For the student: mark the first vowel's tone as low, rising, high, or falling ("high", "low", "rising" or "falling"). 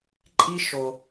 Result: high